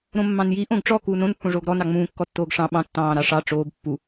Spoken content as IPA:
ɾ õ mː ɑ̃ n j i ʔ õ ɡ ʈ͡ʂ ɔ k uː n õ n pː õ ʐ oː ɡ ɾ ɔ n ɑ ŋ͡m ũː kː ɔ tː oː ɡ ʂ ɑ̃ ɓ ɑ̃ tː ɑ̃ː ɾ ɑ ʂ ɑ ʈ͡ʂ oː b pː u

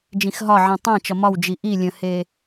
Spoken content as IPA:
d͡ʒ ĩ x ɦ ɒ ʕ ĩ tˤ ã t͡ʃ ɒ m ɒ w d͡ʒ i ʔ i lʲ ə̃ h e

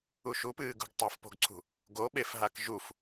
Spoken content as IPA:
u ʃ u p ɨː ɡ ṳ ɡ tˤ o f p o̤ ɡ ǀʰ ṳ | ɡ o ɓ e f ɦ a k ʒ u f

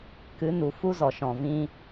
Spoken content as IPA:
k ɨ˨˦ n u˨ f u˦ z ɔ˨ ʃ ɔ̃˨ v ĩ˦

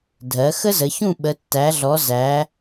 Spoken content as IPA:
dʱ ɜ˩˧ x ə˦ z ə˩˧ ç ũ˦˨ ɓ ə˩˧ tː æ˩˧ ɮ ɔ˩˧ z æ˩˧

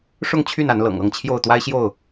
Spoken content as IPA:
ʂ ʊ˥˨ ŋ t͡ɕʰ y˥˨ n a˨˦ n l ɤ̰˨˩ ŋ ɤ˥˨ ŋ t͡ɕʰ j o˥˨ ʊ̯ t̪ w a˦ ɪ̯ ɕ j o˥˨ ʊ̯

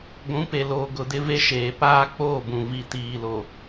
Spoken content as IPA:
ɡʷ ũ˨˦ p e˨ l oː˨ ɡ ʊ˨ d ɪ˦ v e˦ ʃ eː˨ p aː˦ k͡p oː˦˨ b ũ˨ v i˨ t iː˨ l o˨

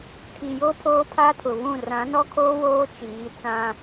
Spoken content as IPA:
tʰ i˨ j o˦ pʰ oː˦ pʰ a˦ tʰ ʊ˨ β ũ˦˨ r ã˨˦ n ɔ˦ kʰ oː˦ w oː˦ t͡ʃ iː˨˦ t͡s ã˦

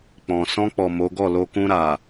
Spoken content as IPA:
k͡p ɔ̃˨ s ɔ̃˧ k͡p ɔ˨ m o˨˦ ɡ ɔ˦˨ l o˧ k ũ˧ ɾ a˨

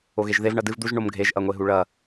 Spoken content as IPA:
o ɣ e ʒ ð e v ɳ ɐ d ɨ v d̪ u ʒ ɳ o m ɡʱ e ʒ ʔ ɐ ŋʷ e ɦ u ɭ ɐ

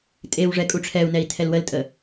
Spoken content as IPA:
tʼ e w ʐ ɛ kʼ u ʈ͡ʂʰ ɛ u̯ n ɛ i̯ tʰ ɛ l w ə l tʼ ə

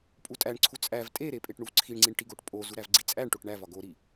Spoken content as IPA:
pʼ u tʼ æ ɳ ǀʰ u t͡sʼ æ v tʼ e ɾ e pʼ e ʈ ɳ u v ǀʰ i ɳ ŋ͡ǀ i ɳ ʈ i ɡ o ʈ pʼ o z u ɾ æ v ɡ͡ǀ i t͡sʼ æ ɳ ʈ o ʈ ɳ æ v ɒ ɡ o ɾ i

